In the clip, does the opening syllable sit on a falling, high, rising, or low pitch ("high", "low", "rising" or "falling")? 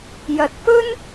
low